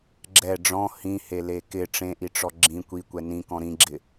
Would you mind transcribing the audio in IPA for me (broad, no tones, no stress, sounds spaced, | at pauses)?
ɡ͡ǁ ɛ ɖ͡ʐ ɔ̃ h ĩ h e l e k ɪ ʈ͡ʂ ẽ ʔ i ʈ͡ʂ ɔ ɡ͡ǁ ĩ kʷ i kʷ ɛ n ĩ k ɔ̃ ɾ ĩ ɡ͡ǁ ɪ